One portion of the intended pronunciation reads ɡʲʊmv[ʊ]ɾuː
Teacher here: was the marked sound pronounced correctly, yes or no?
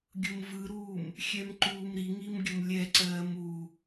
no